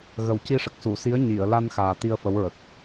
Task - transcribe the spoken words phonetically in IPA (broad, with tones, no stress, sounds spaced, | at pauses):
ɣ ə˨˩ w c i˧ ʂ ə˨˩ k̚ s u˨˩˨ s i˧˥ ə̯ ɲ i˨˩˨ ə̯ l a˧ n x aː˨˩ t̪ i˧ ə̯ f ə˧˥ w ɹ ə˨˩ k̚